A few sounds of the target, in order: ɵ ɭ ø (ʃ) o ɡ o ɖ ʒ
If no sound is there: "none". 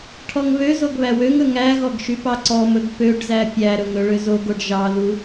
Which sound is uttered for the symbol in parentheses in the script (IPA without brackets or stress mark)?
z